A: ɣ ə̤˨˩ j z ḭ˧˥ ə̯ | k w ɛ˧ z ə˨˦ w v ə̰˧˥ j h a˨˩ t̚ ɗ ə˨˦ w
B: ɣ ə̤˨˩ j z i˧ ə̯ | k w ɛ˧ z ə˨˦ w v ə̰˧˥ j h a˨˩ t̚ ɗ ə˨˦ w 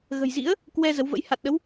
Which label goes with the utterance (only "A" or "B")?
A